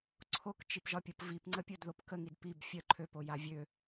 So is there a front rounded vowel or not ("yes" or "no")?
yes